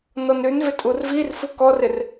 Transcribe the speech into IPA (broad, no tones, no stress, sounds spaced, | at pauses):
n ɔ n ɾ ʉ n v ɪ tʼ u r v i r f u k ɔ r ɪ r